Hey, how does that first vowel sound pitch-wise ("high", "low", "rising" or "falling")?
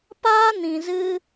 high